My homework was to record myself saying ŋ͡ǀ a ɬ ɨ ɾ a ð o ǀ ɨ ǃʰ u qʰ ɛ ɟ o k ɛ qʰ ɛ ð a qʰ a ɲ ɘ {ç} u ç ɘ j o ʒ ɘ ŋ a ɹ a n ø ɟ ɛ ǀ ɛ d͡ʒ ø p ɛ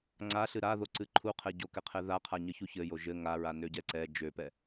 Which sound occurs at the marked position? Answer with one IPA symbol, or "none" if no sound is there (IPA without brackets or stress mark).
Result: ç